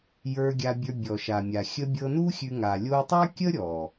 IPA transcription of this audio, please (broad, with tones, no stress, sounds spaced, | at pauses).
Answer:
j ə˞˧ ɡʲ a˧ bʲ ə˞˧ bʲ ɔ˨ ʃ a˨ mʲ a˨ xʲ ə˧ bʲ ɤ˧ n u˦ xʲ ʉ˧ ŋ a˨ lʲ o˦ u̯ tˤ a˦ kʲ ə˦ ɾʲ ɔ˨